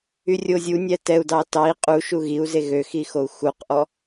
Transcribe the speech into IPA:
yrʲozʲu nʲætɛu̯dɑ tɑi̯ qʼu ʃuɣiu̯ze ɣøxixou̯ xuqʔɔ

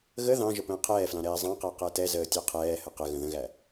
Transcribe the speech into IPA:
ɣə ðɑ̃ ʒəpə̃ːqʰɛːflɑ̃ ɾɛːzˤɑ̃qæ qætɛzəː tʲɑqʰɛːhə qəɣə̃ ðə̃ɣæ

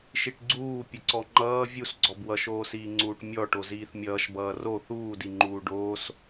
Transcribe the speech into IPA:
ʃiʈɡ͡ǀuː pʲəǀɔŋ͡ǃʌː vʲusɡ͡ǀɔb wʌʃoːsiːŋ͡ǀuːʈ mʲɔʈo ziːθmʲʌːʃ bʌːro θuːdi ŋ͡ǃuːɖoːs

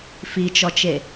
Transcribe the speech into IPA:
fit͡ʃɔt͡ʃe

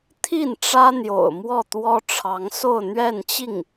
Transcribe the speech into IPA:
t̪ʰi˥˩n ʈ͡ʂä˥n̪jo̰˨˩ʊ̯ mwɔ˥˩ t̪wɔ˥ʈ͡ʂʰɑ˧˥ŋ so˥˧ʊ̯n̪ɥɛ˥˧nt͡ɕi˥˩ŋ

